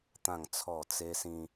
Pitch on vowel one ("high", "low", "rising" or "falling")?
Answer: falling